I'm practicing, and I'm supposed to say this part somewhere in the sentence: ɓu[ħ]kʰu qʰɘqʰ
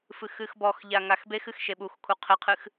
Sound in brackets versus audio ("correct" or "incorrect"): incorrect